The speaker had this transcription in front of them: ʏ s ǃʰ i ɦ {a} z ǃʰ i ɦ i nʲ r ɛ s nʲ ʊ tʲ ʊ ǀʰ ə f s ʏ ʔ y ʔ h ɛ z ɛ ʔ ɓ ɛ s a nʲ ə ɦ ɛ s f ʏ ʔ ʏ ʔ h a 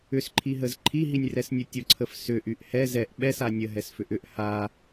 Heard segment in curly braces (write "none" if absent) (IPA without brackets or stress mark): ə